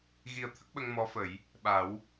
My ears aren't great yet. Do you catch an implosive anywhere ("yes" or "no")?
yes